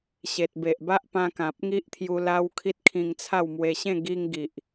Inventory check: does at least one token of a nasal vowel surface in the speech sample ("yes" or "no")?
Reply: yes